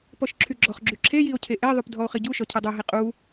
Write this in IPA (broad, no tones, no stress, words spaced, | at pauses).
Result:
pɔʃǁʰyɡ͡ǁɔχɡ͡ǁy ǁʰejio̯ cʰeʔeðˤyp dʱɔo̯χiɟuʃɔ cʰedˤuɦi qʼu